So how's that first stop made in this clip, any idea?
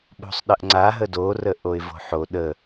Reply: implosive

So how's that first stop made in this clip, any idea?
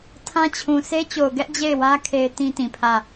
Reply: aspirated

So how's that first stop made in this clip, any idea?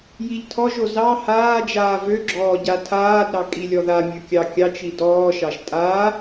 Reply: aspirated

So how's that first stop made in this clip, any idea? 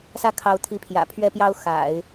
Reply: aspirated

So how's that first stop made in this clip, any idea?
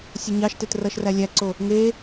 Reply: plain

